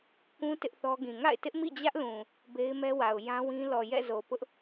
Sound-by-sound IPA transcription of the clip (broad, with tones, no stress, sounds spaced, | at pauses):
k ũ˦ t ɪ˦ ʔ θ ɔ˦ ɡ ĩ˨ ŋ a̰˦˨ ɪ̯ t ɪ˦ ʔ m ḭ˦˨ d͡ʑ ä˦ ʔ l ũ˨ | b e˦ ɪ̯ m ɛ˦ w a˨ ʊ̯ j ã˦ w ĩ˦ l ɔ˨ j ɛ̰˦˨ z o˨ p ʊ˦ ʔ